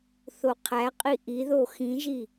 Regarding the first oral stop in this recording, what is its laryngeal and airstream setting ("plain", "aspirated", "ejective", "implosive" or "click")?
aspirated